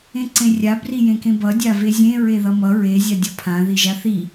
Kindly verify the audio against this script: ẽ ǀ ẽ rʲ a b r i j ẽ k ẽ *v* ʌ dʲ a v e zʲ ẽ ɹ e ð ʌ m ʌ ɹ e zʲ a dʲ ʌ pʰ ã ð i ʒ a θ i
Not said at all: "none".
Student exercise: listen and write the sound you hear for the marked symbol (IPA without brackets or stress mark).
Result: b